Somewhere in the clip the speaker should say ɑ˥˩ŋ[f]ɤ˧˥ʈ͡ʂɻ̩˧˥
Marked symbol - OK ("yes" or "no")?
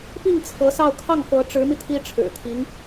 yes